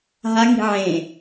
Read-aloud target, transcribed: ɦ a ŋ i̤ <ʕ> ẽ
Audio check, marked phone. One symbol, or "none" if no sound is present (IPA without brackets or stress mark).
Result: ʕ